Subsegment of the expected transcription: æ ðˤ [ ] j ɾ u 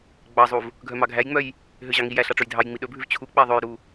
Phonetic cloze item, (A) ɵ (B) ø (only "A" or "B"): A